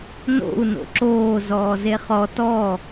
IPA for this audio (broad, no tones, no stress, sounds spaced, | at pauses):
n o̰ u̯ n o̰ ǁ oː z ɔː z e χ ɔ t ɔ